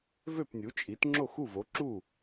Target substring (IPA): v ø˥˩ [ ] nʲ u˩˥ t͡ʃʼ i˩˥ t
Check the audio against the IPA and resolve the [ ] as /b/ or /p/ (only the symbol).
p